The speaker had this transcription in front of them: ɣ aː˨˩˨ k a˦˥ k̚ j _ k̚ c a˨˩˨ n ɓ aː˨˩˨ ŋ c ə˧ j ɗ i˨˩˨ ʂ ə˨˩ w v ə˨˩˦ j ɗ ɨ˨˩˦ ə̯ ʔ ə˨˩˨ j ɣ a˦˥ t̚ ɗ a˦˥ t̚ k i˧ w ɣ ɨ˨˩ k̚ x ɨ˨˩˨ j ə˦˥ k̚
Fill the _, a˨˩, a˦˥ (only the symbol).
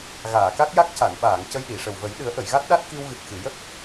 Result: a˦˥